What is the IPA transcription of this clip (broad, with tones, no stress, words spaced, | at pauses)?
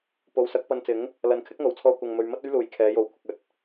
po˨˧wsɐ˨˥k̚pɐ˧nt͡sɪ˨˥ŋ | lɐ˨˥nkʰɪ˥k̚ŋo˨w t͡sʰɔː˧ kʷɐ˨ŋmɵ˨ɥ mɐ˥t̚ɵ˥ɥluː˨˥j kʰɛː˨˧jo˨wkʷʰɪ˨k̚ ɵ˨˥t̚